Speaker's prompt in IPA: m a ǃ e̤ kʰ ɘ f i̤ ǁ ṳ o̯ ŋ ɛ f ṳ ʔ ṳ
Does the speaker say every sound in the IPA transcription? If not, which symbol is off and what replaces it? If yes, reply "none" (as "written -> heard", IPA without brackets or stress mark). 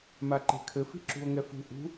none